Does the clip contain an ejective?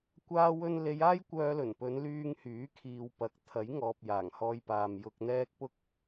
no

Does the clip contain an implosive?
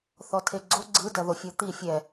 no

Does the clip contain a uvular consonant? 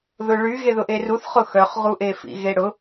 yes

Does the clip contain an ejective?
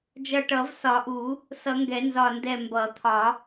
no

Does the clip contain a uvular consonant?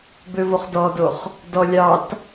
yes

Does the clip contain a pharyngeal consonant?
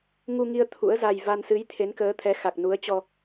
no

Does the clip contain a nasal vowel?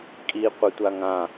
yes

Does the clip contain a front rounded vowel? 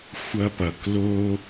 no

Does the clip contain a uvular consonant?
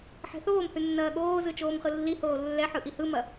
yes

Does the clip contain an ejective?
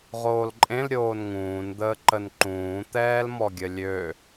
yes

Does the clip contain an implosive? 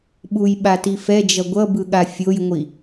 yes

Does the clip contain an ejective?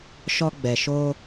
no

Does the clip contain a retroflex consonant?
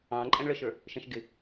yes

